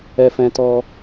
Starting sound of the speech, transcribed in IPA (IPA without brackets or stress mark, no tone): ɛ